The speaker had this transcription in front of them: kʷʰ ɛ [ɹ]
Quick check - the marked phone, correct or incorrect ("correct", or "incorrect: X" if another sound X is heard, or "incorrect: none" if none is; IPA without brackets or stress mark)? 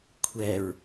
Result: correct